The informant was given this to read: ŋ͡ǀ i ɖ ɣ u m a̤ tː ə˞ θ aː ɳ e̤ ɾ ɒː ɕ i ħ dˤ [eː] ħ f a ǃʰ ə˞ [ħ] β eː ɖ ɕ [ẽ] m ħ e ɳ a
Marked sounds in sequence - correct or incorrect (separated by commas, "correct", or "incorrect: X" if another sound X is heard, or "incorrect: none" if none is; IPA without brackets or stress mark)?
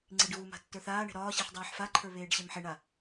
incorrect: iː, incorrect: none, incorrect: e